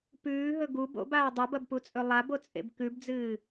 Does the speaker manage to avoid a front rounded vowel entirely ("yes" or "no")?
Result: yes